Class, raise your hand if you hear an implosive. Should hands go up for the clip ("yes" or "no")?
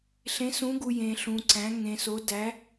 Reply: no